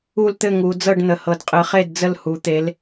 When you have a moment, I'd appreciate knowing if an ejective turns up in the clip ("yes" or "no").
yes